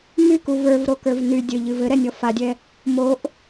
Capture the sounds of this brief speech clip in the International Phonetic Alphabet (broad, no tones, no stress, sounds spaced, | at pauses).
m y k u v ə˞ v ɾ o k ə˞ v n y dʲ ɘ ʎ ɨ v ɘ ɾ ɛ nʲ ɔ f a dʲ ɛ | m o ʔ